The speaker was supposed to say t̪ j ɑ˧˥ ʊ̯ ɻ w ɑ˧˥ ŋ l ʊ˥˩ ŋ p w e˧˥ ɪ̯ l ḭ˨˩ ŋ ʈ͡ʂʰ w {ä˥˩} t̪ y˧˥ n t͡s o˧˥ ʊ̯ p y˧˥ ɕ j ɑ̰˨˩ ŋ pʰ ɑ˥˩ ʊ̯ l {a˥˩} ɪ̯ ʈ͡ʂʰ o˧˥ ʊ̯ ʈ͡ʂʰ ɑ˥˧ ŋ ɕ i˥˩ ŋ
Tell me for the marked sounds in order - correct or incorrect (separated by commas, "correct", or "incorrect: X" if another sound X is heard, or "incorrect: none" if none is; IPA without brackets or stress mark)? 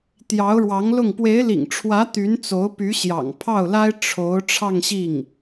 incorrect: ä˧˥, incorrect: a˥